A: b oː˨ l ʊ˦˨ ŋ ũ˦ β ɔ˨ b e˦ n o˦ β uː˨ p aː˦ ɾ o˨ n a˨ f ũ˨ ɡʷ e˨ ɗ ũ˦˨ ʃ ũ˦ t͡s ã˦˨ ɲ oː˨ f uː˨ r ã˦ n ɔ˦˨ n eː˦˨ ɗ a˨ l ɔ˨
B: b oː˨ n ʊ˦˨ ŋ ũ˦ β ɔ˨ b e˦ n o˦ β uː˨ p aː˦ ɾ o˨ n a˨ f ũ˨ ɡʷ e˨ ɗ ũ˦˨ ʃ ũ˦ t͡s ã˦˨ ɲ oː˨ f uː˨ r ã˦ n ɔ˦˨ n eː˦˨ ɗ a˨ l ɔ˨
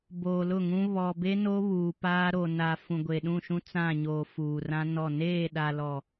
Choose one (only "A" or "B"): A